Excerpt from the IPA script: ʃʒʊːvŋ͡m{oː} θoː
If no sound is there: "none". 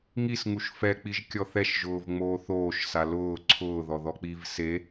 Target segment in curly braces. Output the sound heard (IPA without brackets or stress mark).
oː